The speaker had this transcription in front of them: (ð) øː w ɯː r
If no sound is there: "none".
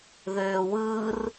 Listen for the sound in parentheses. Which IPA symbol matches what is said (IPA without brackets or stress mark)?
ð